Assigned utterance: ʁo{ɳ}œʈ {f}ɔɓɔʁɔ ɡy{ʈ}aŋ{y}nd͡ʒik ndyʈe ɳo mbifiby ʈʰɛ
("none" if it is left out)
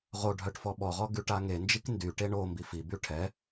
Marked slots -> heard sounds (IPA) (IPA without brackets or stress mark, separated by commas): ɖʱ, f, ʈ, e